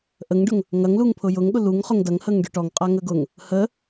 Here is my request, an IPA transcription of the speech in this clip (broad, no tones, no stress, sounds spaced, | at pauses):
ʔ ə ŋ ɖ ʊ ŋ | ŋ ɐ ŋ l u ŋ pʰ ʊ j ʊ ŋ ɠ ʊ l u ŋ χ ʊ ŋ d ɐ ŋ h ə ŋ ɖ ʊ ʈ ɔ ŋ qʼ a ŋ ə ɡ ʊ ŋ | h ə